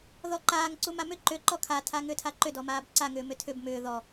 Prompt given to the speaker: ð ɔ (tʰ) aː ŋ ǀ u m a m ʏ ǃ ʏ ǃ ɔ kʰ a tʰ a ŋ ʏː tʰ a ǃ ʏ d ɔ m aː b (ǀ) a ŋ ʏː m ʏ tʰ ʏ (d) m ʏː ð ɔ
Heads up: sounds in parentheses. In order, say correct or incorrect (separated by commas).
incorrect, correct, incorrect